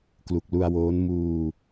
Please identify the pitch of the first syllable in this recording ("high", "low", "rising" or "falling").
low